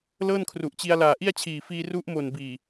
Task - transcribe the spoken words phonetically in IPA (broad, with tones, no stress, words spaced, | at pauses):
lɤː˥˩nkʰru˨˩ʔt͡ɕi˧a̯ laː˨˩ʔi˥˩a̯t͡ɕʰiː˨˩ fiː˧ ru˦˥ʔmo˨˩n biː˨˩